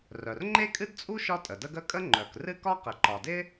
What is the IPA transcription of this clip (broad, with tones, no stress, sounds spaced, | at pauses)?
r œ˩ r ŋ͡ǃ e˥ kʼ ɨ˥ d t͡sʼ u˥ ʃ ɒ˥ tʼ ə˩ d ə˥ ɡ ə˥ kʼ ə˥ ŋ͡ǃ œ˩ k r ɨ˥ k ɒ˥ q ɪ˩ ǃ ɒ˩ d ɪ˥